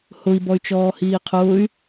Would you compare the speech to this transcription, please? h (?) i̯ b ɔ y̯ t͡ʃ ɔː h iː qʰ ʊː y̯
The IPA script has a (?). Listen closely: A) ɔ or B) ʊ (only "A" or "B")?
B